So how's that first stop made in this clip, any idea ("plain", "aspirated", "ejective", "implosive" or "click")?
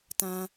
plain